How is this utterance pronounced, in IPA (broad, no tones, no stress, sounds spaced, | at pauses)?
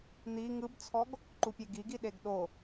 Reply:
n̪ i ŋ ɯ b t͡sʰ ɔ ɡ | ǃ u pʲ e ɡ i ɡ i ɗ e ɡ ɗ o